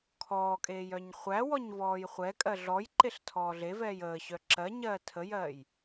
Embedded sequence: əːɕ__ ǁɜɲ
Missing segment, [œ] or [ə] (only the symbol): œ